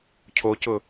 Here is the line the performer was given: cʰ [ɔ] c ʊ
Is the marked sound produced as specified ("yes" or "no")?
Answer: no